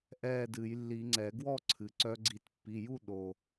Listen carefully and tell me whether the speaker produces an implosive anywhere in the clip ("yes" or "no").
yes